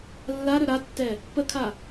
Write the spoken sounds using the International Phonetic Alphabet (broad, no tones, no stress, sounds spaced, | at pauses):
lː a ɾ ɵ ɾ a tː ɛ | p ə kʰ a